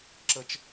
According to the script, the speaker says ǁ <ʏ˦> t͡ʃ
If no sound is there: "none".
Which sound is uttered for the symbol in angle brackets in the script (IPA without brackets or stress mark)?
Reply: ə˦